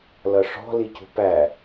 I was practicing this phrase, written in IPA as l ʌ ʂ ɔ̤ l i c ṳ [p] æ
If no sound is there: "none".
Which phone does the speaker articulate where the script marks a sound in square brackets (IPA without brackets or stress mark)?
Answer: p